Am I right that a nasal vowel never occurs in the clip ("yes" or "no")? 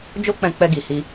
no